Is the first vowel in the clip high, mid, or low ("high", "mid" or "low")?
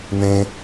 mid